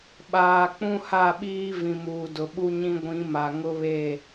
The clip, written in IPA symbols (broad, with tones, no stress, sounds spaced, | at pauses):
ɓ aː˨ k͡p ũ˦ h a˦˨ ɓ iː˦ v ĩ˨ m uː˨ d ʊ˨ ɓ u˦ ɲ ĩ˦ ɡʷ ĩ˨˦ m a˨ ŋ ʊ˦ β e˦˨